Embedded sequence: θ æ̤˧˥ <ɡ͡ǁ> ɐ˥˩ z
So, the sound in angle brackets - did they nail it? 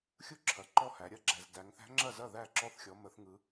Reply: no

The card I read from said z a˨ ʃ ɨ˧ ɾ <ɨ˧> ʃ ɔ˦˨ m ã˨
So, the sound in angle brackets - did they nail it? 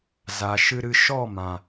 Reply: yes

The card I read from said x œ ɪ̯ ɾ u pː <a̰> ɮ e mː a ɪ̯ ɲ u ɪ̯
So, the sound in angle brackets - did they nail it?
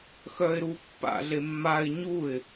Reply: yes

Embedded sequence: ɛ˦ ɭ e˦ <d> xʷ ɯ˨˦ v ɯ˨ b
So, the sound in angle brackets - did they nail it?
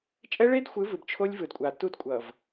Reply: yes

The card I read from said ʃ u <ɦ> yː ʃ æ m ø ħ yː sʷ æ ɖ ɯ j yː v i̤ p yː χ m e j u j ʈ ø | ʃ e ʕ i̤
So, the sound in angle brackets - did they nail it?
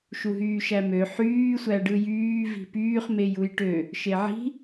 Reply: yes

